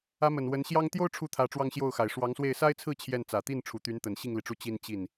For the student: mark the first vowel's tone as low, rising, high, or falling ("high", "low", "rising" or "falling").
rising